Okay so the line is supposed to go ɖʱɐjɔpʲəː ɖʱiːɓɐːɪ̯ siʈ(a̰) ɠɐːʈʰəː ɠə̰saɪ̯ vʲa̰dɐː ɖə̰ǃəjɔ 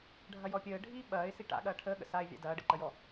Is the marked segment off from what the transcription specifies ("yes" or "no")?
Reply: no